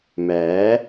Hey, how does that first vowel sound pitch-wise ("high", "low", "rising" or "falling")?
rising